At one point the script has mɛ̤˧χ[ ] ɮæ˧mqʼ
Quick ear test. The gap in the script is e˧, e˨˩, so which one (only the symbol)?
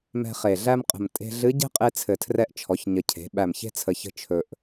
e˨˩